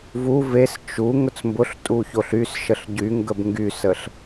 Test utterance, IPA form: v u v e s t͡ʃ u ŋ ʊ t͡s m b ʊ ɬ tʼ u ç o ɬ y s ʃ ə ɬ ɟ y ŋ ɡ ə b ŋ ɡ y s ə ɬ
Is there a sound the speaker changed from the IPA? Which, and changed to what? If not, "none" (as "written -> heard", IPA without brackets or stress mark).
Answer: none